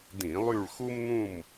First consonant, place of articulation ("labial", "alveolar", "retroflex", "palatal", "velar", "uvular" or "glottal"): alveolar